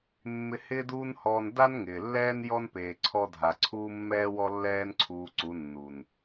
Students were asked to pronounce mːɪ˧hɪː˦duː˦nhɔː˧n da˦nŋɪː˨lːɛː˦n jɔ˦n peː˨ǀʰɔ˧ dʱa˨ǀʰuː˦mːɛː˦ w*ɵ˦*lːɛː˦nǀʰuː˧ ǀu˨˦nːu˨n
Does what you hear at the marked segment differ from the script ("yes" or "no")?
yes